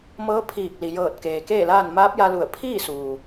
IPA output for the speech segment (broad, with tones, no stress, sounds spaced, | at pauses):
m ɤː˧˥ pʰ iː˧˩ k̚ l i˩ j ɤː˧˩ t̚ k eː˩ k eː˥˨ l aː˥˨ n m aː˧˥ p̚ j a˧ l u˧˩ ə̯ pʰ iː˥˨ s uː˩